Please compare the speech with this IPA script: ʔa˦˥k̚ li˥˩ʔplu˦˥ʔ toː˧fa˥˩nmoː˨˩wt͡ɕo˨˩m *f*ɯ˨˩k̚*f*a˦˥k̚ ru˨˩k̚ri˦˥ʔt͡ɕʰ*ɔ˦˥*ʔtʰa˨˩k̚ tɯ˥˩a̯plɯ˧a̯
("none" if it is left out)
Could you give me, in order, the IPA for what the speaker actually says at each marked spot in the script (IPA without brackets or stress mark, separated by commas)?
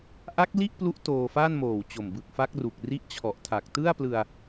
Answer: b, f, ɔ˨˩